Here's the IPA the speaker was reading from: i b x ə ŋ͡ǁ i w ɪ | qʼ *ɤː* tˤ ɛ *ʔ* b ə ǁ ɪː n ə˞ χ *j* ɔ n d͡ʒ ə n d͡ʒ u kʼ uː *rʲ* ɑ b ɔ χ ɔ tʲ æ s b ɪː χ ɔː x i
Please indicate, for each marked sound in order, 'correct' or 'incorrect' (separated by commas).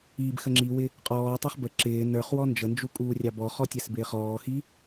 incorrect, incorrect, incorrect, correct